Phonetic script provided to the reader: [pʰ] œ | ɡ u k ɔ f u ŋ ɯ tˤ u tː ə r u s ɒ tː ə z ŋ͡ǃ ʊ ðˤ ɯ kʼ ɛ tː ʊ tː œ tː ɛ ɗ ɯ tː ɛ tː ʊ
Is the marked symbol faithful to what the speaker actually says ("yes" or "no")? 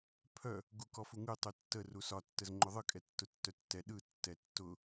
yes